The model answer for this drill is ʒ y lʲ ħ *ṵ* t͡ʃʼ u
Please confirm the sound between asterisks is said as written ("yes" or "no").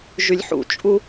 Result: yes